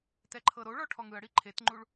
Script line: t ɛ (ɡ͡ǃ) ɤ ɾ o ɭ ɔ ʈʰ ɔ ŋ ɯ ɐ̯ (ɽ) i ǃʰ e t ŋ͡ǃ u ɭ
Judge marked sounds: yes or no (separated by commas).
no, yes